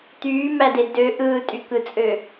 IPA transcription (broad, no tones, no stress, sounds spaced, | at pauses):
t̪ yː m æ d e d ø ʔ ɯː tʼ y k ɯ t͡sʼ ø